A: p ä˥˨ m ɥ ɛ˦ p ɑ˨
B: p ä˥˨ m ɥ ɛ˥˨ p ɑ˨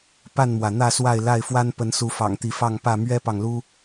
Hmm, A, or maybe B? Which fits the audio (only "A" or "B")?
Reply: A